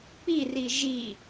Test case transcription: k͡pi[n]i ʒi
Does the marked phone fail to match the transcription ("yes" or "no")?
yes